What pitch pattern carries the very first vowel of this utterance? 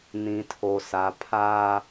low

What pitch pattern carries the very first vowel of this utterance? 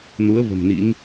rising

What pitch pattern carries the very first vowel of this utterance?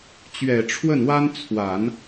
low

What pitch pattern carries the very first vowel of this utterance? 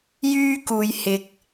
high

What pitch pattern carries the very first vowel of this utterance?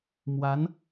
rising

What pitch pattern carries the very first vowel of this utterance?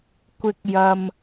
high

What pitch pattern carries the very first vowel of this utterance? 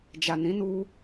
low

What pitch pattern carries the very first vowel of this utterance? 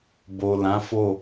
low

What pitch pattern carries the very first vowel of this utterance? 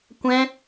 high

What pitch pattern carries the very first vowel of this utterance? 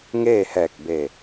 falling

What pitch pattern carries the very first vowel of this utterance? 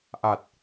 low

